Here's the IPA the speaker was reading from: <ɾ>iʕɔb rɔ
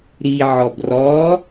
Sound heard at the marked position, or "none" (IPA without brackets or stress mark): ɾ